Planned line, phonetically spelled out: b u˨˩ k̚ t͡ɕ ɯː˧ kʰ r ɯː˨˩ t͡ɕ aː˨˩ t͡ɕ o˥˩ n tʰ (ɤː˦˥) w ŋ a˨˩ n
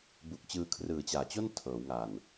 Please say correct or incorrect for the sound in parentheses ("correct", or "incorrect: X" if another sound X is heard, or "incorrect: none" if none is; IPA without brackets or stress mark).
incorrect: ɤː˩˦